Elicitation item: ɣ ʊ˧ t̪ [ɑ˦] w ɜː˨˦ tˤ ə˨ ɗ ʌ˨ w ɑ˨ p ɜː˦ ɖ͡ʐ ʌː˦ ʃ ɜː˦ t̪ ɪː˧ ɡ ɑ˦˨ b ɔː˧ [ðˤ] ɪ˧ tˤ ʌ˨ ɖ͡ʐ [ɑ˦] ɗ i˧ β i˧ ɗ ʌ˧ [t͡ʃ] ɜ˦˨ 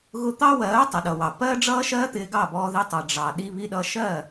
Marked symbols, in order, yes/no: yes, no, no, no

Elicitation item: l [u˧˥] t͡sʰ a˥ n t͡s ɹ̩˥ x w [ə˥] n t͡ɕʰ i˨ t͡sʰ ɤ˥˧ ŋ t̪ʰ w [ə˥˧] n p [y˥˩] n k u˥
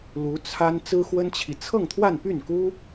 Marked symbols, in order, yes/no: yes, yes, no, yes

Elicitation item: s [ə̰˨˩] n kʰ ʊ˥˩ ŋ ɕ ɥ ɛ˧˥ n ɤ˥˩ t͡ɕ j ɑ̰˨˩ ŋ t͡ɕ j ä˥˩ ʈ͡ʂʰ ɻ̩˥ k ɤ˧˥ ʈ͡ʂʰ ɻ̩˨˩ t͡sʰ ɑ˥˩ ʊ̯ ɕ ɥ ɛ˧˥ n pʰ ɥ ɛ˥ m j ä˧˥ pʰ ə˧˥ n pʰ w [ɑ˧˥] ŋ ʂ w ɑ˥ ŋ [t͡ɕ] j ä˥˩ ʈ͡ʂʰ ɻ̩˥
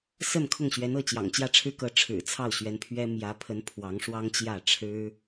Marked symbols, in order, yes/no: no, yes, yes

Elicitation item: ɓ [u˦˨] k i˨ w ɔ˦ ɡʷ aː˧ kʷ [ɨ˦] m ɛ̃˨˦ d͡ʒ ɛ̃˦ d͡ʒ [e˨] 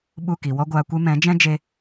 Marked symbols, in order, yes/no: yes, no, no

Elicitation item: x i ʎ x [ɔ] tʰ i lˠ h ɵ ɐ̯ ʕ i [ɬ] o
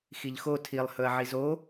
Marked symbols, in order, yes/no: no, no

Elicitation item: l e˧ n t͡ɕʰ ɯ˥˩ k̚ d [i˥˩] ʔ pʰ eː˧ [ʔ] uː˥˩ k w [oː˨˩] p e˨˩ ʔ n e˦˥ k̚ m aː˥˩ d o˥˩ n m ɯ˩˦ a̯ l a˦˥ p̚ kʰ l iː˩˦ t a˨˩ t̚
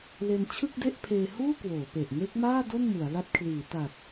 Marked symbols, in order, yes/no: no, no, no

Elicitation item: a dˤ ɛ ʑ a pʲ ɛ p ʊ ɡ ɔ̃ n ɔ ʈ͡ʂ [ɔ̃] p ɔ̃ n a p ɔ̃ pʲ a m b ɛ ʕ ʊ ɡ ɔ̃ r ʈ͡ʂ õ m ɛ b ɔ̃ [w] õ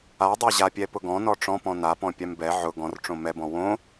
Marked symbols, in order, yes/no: yes, yes

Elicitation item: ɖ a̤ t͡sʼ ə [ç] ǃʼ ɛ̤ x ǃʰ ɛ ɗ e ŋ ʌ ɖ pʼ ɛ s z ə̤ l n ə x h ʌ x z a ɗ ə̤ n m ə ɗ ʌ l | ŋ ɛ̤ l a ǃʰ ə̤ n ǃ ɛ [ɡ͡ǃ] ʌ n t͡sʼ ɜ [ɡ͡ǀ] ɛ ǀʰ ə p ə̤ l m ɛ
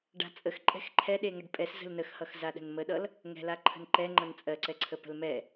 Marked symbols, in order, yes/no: no, no, no

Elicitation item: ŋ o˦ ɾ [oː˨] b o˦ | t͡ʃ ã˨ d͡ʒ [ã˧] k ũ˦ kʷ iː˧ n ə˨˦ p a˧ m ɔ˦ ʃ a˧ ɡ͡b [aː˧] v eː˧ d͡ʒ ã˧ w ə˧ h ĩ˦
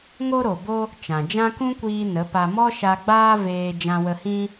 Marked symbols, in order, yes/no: no, no, no

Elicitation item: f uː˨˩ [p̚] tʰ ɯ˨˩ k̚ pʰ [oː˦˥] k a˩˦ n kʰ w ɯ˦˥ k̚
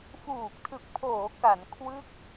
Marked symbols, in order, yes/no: no, no

